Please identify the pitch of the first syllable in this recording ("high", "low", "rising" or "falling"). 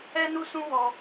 high